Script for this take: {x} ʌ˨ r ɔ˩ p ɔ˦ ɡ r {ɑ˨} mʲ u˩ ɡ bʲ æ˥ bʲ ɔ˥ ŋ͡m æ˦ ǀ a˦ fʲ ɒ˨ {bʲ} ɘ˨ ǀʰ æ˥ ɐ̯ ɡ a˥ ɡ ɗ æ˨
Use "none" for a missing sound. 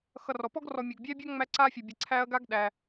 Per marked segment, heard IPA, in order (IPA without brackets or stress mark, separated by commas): x, ɔ˨, bʲ